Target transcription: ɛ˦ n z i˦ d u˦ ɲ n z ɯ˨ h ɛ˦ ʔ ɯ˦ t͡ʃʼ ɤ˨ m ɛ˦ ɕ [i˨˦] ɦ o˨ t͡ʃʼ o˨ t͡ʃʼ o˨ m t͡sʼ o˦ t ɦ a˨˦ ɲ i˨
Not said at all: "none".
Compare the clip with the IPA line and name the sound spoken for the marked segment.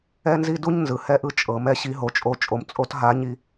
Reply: i˨˦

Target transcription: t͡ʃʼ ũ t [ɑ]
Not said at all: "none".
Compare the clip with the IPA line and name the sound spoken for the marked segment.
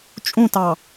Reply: ɑ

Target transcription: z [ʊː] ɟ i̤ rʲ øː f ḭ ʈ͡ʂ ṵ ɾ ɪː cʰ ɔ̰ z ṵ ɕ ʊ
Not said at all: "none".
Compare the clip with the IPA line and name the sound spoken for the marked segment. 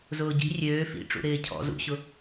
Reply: ʊː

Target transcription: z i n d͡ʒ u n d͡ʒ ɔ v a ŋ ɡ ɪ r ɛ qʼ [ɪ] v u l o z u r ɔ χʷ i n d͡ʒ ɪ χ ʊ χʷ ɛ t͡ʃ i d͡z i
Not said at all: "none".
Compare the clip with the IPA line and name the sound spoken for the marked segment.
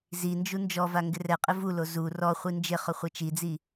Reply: ɪ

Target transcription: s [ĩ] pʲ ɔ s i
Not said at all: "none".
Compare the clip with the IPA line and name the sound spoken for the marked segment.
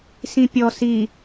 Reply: ĩ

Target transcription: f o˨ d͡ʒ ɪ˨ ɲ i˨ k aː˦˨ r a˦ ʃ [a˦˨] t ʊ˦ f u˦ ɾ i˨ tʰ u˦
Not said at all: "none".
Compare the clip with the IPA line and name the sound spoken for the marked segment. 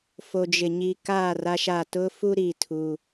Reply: a˦˨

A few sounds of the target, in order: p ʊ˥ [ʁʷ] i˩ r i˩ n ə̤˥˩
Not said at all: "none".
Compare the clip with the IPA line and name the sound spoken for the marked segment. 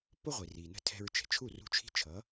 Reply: ʁʷ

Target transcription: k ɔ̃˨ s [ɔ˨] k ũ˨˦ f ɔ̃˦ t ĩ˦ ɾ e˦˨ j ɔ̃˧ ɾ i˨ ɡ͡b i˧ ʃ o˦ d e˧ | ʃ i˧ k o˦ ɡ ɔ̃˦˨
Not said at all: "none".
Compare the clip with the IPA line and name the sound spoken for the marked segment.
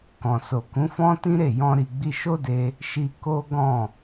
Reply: o˨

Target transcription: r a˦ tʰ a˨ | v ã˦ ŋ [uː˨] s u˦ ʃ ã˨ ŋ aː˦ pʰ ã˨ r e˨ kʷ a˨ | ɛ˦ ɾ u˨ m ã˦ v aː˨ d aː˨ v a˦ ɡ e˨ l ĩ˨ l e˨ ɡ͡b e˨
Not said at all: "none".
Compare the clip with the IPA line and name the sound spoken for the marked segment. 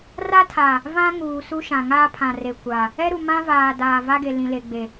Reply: uː˨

